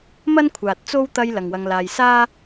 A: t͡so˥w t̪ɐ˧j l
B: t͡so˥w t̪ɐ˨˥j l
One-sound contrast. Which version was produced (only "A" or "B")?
A